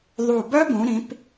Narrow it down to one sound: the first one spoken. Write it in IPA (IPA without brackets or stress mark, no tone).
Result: ðˤ